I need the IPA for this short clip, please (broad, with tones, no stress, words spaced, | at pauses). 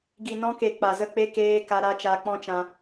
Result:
ɡi˨nɔ̃˧ke˨ k͡pa˨zə˦˨k͡pe˦ keː˧ ka˧ɾa˦ t͡ʃa˧k͡pɔ̃˦t͡ʃã˧